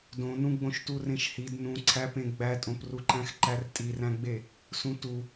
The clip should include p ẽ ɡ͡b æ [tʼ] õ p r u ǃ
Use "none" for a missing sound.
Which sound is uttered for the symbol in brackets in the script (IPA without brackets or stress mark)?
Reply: tʼ